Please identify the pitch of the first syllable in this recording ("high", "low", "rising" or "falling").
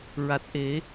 low